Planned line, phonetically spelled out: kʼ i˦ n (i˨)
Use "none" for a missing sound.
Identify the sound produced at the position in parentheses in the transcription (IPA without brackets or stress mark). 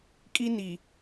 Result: i˨